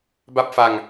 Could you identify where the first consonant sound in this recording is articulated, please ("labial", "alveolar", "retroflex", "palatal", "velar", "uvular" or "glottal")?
labial